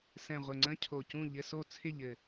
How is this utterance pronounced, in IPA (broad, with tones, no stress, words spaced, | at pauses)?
sɛ̃˨˩ ʁʷɘ˨˩ŋ͡ǀə̃˧˥˧ cʰo˨˩cũ˥˨ ʎɘ˧˥˧so˥˨ t͡sʰɪ˥˨ʎɘ˨˩